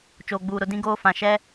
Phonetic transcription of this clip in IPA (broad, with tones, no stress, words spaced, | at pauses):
t͡ʃoː˨ɡ͡buː˨ɾʊ˨ dĩ˦ɡoː˦fã˨ ʃɛ˦